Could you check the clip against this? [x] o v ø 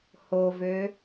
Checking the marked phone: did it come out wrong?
yes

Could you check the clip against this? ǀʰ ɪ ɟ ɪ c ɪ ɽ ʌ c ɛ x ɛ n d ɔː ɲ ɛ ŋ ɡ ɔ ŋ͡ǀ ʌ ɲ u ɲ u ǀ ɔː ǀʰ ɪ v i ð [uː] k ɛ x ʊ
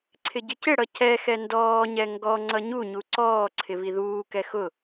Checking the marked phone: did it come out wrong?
no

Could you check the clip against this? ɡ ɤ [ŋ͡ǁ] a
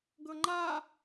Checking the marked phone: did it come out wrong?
yes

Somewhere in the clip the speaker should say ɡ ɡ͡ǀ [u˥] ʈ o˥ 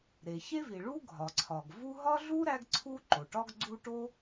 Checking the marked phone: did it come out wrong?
no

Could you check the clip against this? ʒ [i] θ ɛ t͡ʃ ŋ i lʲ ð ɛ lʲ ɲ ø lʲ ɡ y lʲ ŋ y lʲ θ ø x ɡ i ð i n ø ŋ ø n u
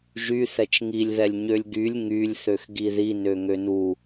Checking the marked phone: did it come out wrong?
yes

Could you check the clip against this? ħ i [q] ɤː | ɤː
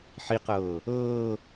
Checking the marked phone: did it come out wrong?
no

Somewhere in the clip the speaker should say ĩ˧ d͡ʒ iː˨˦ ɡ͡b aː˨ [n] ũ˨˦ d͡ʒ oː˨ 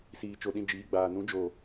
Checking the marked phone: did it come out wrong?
no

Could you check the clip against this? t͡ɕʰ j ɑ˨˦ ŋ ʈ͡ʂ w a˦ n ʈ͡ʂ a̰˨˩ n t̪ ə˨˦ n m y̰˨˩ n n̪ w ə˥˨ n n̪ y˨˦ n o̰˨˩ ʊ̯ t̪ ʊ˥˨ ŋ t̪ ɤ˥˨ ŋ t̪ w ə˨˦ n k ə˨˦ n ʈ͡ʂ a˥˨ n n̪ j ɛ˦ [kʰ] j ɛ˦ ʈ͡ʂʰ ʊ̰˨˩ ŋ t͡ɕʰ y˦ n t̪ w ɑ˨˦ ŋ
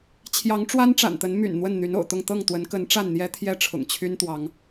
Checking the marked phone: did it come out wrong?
yes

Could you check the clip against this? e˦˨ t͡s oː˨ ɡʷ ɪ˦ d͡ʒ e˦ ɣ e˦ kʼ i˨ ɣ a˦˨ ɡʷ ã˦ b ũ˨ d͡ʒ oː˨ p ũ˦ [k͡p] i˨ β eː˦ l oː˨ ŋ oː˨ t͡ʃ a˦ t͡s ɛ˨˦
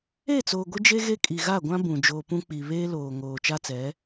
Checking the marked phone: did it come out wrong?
no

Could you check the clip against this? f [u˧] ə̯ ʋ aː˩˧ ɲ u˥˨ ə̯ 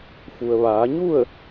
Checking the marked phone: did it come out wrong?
yes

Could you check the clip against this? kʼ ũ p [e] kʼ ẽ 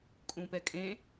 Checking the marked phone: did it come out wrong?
yes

